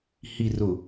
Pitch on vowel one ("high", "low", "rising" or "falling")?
low